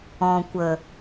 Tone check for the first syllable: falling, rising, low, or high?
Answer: low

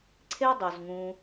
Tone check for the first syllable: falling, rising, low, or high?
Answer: high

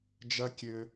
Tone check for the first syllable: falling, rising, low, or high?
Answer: high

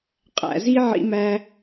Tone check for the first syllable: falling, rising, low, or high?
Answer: low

